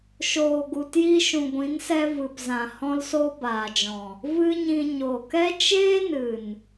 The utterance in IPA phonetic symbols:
ʃ oː˨ ɡ u˨ t j i˧ ʃ ũ˨ ɡʷ ĩ˨˦ n s ɛ˧ v ɨ˨ p z ã˨ h ɔ̃˦ l s o˦ b aː˨ d͡ʒ ɔ̃˨ | v ɨ˦ ɲ ĩ˧ ɲ o˨ k ɛ˦ t͡ʃ eː˦ n ɨ˨ n

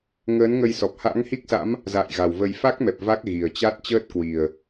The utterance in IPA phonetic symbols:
ŋ əː˨˦ n ŋ ə˧ j s ɔ˨˩ p̚ h a̰˧˥ ŋ h i˦˥ k̚ s a̰˧˥ m | z a̰ː˧˨ j ɣ a˨˩ w v ə˧ j f a˦˥ k̚ m ɛ˨˩ p̚ v a˦˥ k̚ ɣ i˨˩ ə̯ t͡ɕ a˦˥ t̚ t͡ɕ əː˦˥ t̚ k w i˨˩ ə̯

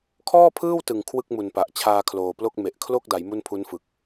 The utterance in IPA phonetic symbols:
kʰ ɔː˥˩ pʰ ɯː˥˩ w t ɯ˨˩ ŋ kʰ w ɯ˥˩ k̚ m u˨˩ n p a˨˩ ʔ t͡ɕʰ aː˧ kʰ l oː˨˩ p l o˥˩ k̚ m e˨˩ ʔ kʰ l o˥˩ k̚ d a˩˦ j m u˥˩ n pʰ u˦˥ n f ɯ˨˩ k̚

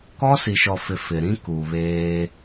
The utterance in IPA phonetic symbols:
k ɔ˦ s i˨ ʃ ɔ˨ f ɪ˨ f ɪ˨ ɾ ĩ˦ k u˨ β eː˦

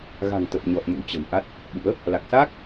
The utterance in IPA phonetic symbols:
ɣ a̤˨˩ ŋ t̪ ə˨˩ p̚ ɲ ɔ˨˩ t̚ m ṵ˧˥ t͡ɕ ə̤˨˩ m ʔ a˦˥ t̚ | ɓ ṵ˧˥ ə̯ | l a˨˩ k̚ s aː˦˥ k̚

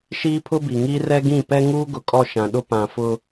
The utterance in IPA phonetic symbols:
ʃ iː˦ pʰ ʊ˦ b i˨ ŋ iː˦ r ɛ˦ ɡ ĩ˦˨ p ɛ˦ ŋ uː˦ ɡ ʊ˨ kʼ ɔ˦˨ ʃ ã˨ ɗ ʊ˦ p ã˨ f ʊ˦

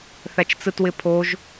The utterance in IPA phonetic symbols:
θ æ t͡ʃ t͡s ɯ t w ɪ pʰ o ʒ

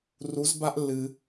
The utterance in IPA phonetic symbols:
r u˧˥ z b a˥ ʔ lː ɨ˧

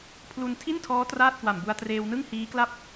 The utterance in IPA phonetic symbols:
pʰ l u˧ n tʰ i˥˩ n tʰ ɔː˦˥ t r aː˥˩ t̚ k w a˨˩ m b u˧ a̯ t r eː˧ w n ɯ˥˩ ŋ h iː˦˥ k l a˥˩ p̚

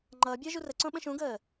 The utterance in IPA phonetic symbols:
ŋ͡ǃ ʌː bʲ ʌː ʒ u r ə ǀ õ ɓ ə̃ ʃ ũ ɡ əː

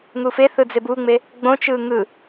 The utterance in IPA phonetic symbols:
ŋ u f e θ ɯ d͡z e b u ŋ͡m e | ɡ͡b õ t͡ʃ ɯ ŋ ɯ

